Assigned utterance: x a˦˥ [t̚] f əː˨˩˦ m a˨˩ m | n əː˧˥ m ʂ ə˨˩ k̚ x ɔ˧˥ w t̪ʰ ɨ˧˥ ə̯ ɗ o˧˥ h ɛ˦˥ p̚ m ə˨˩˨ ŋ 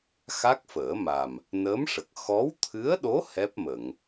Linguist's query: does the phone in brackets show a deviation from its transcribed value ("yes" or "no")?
yes